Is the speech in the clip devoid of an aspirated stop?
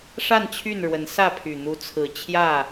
no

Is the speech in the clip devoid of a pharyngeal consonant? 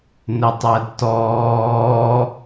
yes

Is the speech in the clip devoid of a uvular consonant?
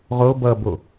no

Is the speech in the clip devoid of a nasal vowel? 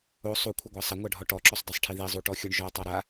yes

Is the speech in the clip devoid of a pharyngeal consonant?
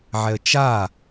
no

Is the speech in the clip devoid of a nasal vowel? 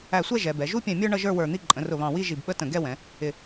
no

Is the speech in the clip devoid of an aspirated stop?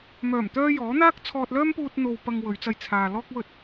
no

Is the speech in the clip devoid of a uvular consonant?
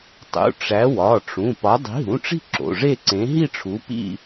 yes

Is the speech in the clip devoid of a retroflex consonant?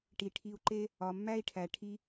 no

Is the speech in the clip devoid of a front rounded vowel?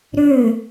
no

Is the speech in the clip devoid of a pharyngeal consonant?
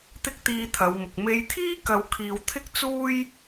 yes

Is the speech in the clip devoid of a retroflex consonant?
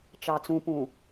yes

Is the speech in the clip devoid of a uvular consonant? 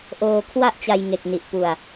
yes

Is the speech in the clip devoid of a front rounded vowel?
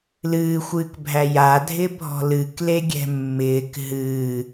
yes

